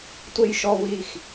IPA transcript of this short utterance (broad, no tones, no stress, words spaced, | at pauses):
tʷejʃɔ wix